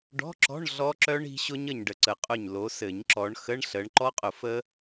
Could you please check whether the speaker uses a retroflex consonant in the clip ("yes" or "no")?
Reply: yes